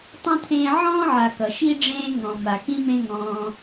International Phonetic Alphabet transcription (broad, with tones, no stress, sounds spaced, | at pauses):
tˤ ũ˥ t̪ʰ ẽː˦ ʕ ɔ̃ː˥ ʕ a˨ k ʌ˩ ʃ i˥ ɖ͡ʐ ẽː˦ ŋ ɔ̃˩ m a˩ k ĩ˥ m ẽ˦ ŋ ɔ̃ː˩